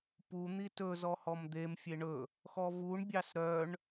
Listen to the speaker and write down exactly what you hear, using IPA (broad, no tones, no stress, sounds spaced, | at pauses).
p u n̪ i t ɵ z ɔ h ɔ m d̪ e m fʲ e ɳ ɵ | x ɔ v u ɳ bʲ ɑ s ɾ œ ɳ